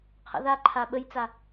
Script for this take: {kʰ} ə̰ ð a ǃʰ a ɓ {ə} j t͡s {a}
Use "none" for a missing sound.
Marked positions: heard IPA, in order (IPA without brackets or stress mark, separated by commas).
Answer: qʰ, ə, a